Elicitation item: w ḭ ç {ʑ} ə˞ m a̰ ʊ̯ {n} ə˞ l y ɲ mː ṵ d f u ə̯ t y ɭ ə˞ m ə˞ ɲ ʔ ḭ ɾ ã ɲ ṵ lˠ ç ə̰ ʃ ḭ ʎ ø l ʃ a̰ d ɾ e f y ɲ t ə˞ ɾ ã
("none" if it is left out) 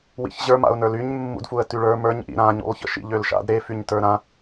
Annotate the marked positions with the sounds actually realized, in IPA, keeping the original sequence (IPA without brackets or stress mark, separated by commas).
ʑ, n